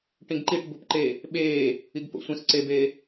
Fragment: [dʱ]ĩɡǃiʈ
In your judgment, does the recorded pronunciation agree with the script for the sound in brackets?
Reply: no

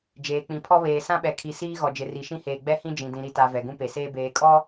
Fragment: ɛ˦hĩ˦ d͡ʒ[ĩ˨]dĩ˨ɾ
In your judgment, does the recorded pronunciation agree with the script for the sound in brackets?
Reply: yes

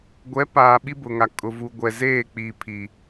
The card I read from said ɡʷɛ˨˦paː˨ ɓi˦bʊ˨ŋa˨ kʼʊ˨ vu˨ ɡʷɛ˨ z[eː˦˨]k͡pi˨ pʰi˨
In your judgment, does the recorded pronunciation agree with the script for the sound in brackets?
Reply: yes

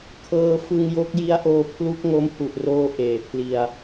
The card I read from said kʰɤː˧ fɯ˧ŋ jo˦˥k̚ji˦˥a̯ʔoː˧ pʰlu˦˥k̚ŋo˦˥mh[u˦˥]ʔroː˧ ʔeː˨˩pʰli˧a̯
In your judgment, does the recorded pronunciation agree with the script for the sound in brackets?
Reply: no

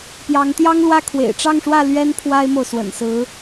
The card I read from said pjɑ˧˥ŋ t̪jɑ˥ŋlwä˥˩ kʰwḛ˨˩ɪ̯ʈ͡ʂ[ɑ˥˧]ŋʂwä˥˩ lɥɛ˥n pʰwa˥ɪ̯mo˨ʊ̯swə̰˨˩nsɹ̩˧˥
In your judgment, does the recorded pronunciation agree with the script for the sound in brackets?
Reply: yes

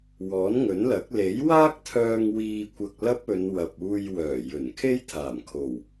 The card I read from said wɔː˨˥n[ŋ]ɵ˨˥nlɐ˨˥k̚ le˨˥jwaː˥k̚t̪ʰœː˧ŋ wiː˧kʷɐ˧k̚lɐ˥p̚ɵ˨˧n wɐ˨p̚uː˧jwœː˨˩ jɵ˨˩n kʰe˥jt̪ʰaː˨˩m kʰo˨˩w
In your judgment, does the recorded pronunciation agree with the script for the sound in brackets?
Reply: yes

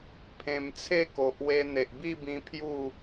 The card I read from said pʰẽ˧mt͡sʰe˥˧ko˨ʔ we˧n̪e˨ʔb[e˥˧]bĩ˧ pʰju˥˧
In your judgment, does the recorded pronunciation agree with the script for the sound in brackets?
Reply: no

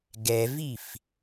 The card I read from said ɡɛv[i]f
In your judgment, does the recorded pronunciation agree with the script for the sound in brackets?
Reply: yes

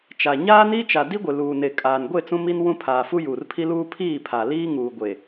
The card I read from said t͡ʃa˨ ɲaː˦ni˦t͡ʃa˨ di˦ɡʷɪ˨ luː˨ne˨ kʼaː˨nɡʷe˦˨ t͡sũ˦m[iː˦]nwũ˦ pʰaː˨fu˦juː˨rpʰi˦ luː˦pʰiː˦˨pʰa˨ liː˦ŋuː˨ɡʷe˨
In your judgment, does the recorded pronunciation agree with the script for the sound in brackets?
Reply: no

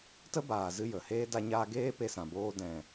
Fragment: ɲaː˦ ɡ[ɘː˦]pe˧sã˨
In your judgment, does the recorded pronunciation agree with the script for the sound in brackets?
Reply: no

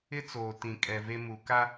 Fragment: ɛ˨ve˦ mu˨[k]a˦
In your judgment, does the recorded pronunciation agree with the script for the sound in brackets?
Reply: yes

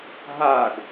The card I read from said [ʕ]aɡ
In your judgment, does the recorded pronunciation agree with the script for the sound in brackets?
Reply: no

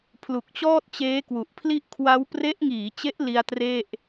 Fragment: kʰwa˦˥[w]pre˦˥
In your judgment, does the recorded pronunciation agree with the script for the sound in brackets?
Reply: yes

